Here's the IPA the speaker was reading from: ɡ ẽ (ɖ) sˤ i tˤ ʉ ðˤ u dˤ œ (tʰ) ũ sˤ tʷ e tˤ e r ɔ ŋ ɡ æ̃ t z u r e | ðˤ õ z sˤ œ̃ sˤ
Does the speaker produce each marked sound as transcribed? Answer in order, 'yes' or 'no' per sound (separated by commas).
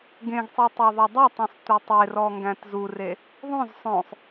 no, no